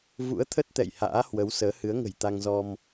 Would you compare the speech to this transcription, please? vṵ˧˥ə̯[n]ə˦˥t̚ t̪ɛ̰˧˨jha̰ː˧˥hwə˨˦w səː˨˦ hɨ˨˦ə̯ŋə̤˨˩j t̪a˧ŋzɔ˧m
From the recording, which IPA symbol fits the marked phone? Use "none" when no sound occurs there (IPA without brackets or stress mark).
t̪ʰ